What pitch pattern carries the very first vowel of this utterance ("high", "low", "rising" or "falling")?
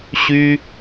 high